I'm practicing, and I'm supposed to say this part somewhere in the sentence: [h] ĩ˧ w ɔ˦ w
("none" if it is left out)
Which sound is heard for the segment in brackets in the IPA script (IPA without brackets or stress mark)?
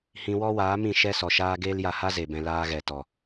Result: h